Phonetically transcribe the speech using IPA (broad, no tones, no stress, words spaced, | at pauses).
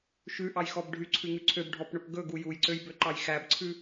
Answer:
ʃʉʔɑjxɔb ɖʱyǀʰʉŋʉ ǀʰøbɖʱɔpɳɵp ɡɵɡu jujǀøjbøǃɑj xæbǀʰʉ